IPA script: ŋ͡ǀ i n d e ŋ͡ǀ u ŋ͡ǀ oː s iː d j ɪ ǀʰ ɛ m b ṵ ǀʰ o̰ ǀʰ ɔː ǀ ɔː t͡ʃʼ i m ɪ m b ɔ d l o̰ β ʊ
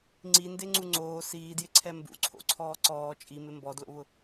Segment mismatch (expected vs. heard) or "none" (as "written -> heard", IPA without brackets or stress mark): none